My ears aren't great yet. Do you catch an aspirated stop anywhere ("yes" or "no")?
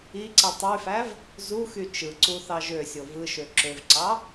no